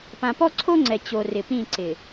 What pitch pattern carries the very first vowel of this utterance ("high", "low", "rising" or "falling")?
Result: low